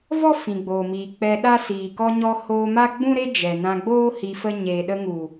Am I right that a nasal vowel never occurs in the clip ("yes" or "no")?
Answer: no